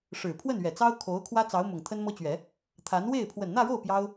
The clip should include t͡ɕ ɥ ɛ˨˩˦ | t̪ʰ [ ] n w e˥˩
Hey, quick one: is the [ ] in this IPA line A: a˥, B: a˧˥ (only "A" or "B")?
B